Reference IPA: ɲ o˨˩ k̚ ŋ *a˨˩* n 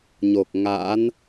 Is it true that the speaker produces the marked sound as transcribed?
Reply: no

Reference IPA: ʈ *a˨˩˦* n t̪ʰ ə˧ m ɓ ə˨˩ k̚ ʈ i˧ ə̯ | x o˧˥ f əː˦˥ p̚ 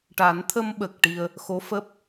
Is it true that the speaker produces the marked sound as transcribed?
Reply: yes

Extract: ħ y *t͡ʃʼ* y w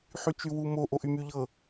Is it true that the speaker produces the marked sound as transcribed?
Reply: no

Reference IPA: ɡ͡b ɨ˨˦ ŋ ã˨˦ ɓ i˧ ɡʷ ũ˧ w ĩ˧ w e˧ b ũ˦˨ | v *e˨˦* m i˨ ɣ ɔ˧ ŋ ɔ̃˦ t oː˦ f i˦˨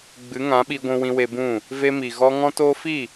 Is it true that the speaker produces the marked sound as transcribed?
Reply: no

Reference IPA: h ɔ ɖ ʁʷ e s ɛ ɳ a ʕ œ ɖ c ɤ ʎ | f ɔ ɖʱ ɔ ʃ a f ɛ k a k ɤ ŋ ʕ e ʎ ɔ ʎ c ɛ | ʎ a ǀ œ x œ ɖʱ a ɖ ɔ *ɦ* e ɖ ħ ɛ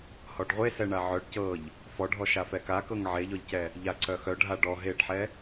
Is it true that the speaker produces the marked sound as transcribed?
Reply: yes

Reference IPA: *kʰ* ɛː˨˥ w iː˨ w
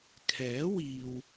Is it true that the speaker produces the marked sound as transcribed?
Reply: yes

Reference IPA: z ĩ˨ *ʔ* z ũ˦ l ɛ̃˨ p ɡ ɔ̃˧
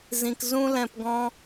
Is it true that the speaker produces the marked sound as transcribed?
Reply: no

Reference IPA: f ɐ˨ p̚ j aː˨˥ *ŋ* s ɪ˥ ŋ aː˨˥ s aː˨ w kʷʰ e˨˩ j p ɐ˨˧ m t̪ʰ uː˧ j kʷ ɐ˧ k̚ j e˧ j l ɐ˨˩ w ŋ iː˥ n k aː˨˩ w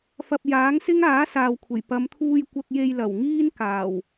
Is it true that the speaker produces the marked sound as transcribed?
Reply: yes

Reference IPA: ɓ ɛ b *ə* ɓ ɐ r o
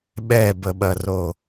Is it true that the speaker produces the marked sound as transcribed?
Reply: yes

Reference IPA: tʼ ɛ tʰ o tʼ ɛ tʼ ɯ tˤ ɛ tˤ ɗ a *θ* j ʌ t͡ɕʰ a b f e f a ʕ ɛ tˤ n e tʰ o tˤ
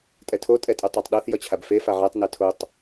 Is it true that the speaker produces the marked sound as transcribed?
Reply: yes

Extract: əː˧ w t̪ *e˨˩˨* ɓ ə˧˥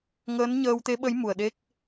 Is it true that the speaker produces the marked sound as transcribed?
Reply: no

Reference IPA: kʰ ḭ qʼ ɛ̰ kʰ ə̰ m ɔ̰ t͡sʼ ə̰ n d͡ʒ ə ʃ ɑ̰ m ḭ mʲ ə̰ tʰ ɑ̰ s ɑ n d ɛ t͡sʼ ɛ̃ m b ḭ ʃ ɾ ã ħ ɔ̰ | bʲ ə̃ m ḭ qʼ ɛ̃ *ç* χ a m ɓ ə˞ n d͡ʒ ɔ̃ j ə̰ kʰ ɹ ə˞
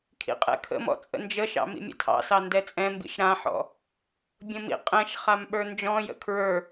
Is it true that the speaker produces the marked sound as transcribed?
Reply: no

